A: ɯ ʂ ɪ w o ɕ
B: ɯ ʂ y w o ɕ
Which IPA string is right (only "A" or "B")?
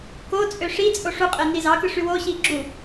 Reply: B